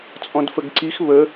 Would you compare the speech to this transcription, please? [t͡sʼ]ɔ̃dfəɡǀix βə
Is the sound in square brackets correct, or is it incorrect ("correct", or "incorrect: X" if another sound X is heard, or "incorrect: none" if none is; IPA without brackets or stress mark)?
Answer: correct